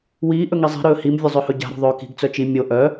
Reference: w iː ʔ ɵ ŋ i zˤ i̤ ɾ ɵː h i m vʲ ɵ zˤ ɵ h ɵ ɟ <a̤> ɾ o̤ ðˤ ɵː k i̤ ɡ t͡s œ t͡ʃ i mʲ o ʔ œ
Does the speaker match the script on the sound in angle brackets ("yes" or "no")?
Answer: yes